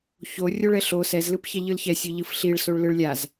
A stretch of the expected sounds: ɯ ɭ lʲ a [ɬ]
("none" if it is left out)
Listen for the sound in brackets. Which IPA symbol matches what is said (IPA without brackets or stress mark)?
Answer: z